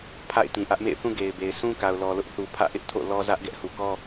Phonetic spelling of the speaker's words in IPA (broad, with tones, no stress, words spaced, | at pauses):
pʰa̰˦˨ɪ̯tĩ˨ʔä˦ʔ mḛ˦˨ɪ̯θũ˦ ɡe˨ɪ̯be˨ɪ̯ sũ˦ka˨ʊ̯lɔ˨ lʊ˦ʔ θu˨ pʰä̰˦˨ʔɪ˦ʔtʰo̰˦˨ lɔ˦zä˦ʔ ɡɛ˦ʔhu˨kɔ˦